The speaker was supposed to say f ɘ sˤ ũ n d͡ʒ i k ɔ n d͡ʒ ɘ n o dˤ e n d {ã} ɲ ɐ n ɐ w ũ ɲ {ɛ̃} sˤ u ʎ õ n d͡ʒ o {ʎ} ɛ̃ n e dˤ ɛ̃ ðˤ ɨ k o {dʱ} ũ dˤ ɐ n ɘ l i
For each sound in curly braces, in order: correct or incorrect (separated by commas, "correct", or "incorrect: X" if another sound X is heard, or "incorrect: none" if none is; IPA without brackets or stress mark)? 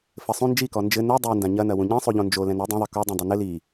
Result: correct, correct, incorrect: l, incorrect: dˤ